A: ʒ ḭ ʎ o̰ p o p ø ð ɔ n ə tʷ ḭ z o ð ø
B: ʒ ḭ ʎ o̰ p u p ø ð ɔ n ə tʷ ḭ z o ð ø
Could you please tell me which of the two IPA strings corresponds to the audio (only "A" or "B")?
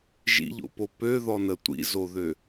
A